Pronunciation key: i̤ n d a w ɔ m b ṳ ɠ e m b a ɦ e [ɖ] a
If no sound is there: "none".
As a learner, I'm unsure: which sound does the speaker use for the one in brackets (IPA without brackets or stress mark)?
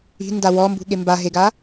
ɡ